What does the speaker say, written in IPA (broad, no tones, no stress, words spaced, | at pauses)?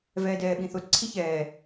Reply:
vɛːdɛːɓĩθot ǀʰiçɛː